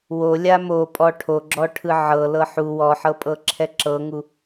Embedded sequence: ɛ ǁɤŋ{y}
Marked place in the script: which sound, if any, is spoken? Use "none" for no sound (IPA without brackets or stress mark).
u